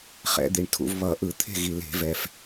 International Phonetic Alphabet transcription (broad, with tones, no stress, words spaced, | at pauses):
χɛ̰˧˩˧d̪i˨˩ɳtʰṵ˧˩˧v βʌ˧˩˧ʔɯ˧˩˧t̪ʰe̤˥˨ɣi˨˩ le̤˧˩˧vɛ˨˩f